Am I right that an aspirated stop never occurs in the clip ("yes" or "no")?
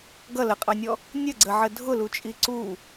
yes